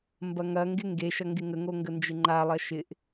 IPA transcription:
mbɐŋɐŋɡɪ ŋɡeʃɐ ŋɡɪŋəŋo ŋɡənd͡ʒɪŋ͡ǃalˠɐ ʃɪʔ

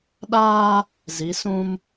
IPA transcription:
ɗaː˦ | zi˨˦sũ˦m

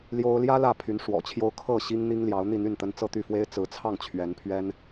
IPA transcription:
ljo˥ʊ̯ ljä˥ lä˥˩pʰy˧˥n ʂwɔ̰˨˩t͡ɕʰjo˥ʊ̯ kʰɤ˥˩ ɕi˥ŋn̪i˥ŋljɑ˧˥ʊ̯ n̪i˥˧n̪y˥˩nt̪ə˥n t͡sɤ˥˧t̪y˥˩fwe˥ɪ̯ t͡sɹ̩˧˥t͡sʰɑ˥˩ŋ t͡ɕʰɥɛ˧˥npʰɥɛ˥n

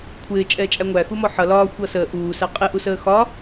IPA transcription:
kʷʰɪː t͡ʃʼɛːt͡ʃʼæŋʷæ xumɔħʌ lɒː xʷʌsəː ʔuː sæqʼɪ ʔusəːxɒ

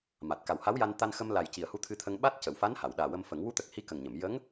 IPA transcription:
ma˨˩t̚ka˨˩wha˧˥wja˧n t̪a˧nxə˧mla˨˩j ci˨˩ə̯hu˧˥t̪ʰɨ˧t̪ʰə˧ŋ ɓa˦˥t̚ cə˨˩˨wfa˧˥n ha˨˩˨wɗaː˨˩wə˧mfə˨˩˦ŋ wu˧˥t̪ə˨˩k̚ hi˧˥kə˨˩ŋɲə˨˩˨m jə˧˥ŋ

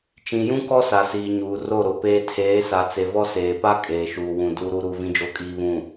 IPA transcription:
t͡ʃĩ˨jũ˦ kɔ˦sa˨siː˨ ɲuː˨ro˦˨ɾo˨ peː˦ tʰeː˨˦sa˨t͡se˨ vɔ˦seː˨pa˦ kʼeː˨ʃuː˨wũ˨ du˨ɾu˨ɾu˨ vĩ˨d͡ʒo˨kʼiː˨ βũ˨

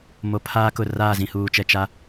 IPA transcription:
mo˨pʰaː˦kʊ˨ raː˦˨zĩ˨huː˨t͡ʃɛ˨ t͡ʃa˦

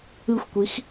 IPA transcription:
ɯxʷkʷix

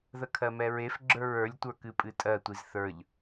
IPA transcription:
ðəkʰɜmɛɹef ɡ͡ǁə˞ɹə˞lʲtʷə˞ kɨpʼɨtʼɜtʷiz θə˞ʎ

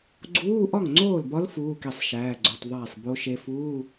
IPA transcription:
ɡ͡ǀuː˧˥˧ ʔɒ˥˩ŋŋ͡ǀoː˥˩lbɒ˧˥l fuː˧˥˧ ke˥˩sˤʃæː˧˥˧ɡ͡ǀo˧˥˧tˤðˤæː˥˩sˤ bo˧˥ʃe˧˥ fuː˧˥˧

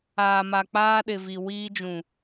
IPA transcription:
aː˨ma˨ k͡paː˦ɗɪ˨vi˨ wiː˦d͡ʒũ˨

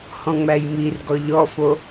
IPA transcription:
hɔ̃ŋ͡mæjmirɡɔ ʎɔfo

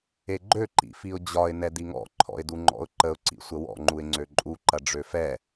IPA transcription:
eɡ͡ǃø ǃḭfiʊ̯d͡ʑɒɪ̯ nɛdiŋɔ̰ ǃʰɔ̰ɪ̯duŋ͡ǃɔ̰ʊ̯ǃəʊ̯ ǀḭsʷəwɔ̰ ŋ͡ǃuɪ̯ŋ͡ǀøǃʼu ǃɐɖ͡ʐøfɛ

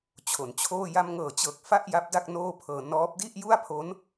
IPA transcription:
t͡ɕʰo˩˦nt͡ɕʰoː˥˩ ja˧mŋɤː˨˩t͡ɕɤː˨˩k̚ fa˥˩ʔ ja˦˥p̚da˥˩k̚ noː˥˩pʰɤː˧ nɔː˦˥p̚ di˥˩ʔ ju˥˩a̯pʰo˦˥n

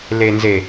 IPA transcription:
le˨nze˨

